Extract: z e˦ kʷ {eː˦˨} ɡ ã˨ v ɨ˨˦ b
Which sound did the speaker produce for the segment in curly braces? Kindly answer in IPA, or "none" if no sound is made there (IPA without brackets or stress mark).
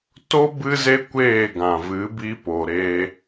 eː˦˨